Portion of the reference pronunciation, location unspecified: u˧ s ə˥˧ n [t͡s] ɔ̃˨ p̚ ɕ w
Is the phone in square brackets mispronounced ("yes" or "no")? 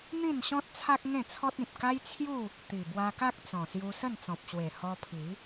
no